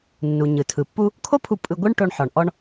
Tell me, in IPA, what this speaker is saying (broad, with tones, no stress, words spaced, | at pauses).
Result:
nːu˩ ɲɯ˩tʰɯ˩ pːu˥ | kʰo˥pʰu˧ pʼɯ˧ɡʷɯ˥ɳʈo˧ɳ ħɔ˩ɳʔɔ˧ɳ